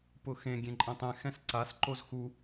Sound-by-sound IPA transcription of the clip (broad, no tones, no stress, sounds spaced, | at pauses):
p ʊ x ẽ ɡʲ ẽ ǃʼ ɛ̃ tˤ ɛ̃ x ɛ̃ s ǀ a s ǃ o z x u